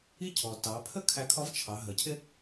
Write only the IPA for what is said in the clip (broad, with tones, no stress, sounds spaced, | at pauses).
i˥ cʰ ɔ˩ t ɑ˩˧ pʰ ə˥ kʰ æ˧ kʰ ɒ˧˥ v t͡ʃʰ ɑ˩˧ ɦ ə˩˧ cʰ ɪ˥